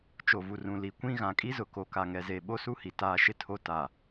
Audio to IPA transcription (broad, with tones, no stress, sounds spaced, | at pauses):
t͡ʃ o˨ v u˨ r ũ˨ l i˨ kʷ ĩ˦ ɣ ã˨ kʼ i˦ z ʊ˨ k o˨ k a˨ ŋ ɛ˨ z e˨ ɓ o˦ s u˦ h i˨ t aː˦ ʃ ɪ˦ tʰ o˦ t a˨